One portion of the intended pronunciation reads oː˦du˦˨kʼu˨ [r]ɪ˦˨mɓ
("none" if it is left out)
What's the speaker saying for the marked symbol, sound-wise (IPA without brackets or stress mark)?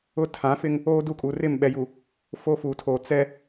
r